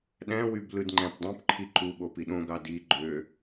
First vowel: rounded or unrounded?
unrounded